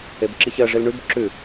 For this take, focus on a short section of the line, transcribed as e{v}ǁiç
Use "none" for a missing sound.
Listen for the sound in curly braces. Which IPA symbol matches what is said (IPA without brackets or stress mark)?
b